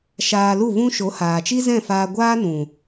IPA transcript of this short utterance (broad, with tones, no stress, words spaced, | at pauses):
ʃaː˧lu˦˨ vũ˦ʃo˨˦ haː˨t͡ʃi˦ zɛ̃˦˨faː˧ɡʷaː˦nũ˨